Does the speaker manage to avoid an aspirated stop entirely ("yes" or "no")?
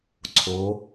no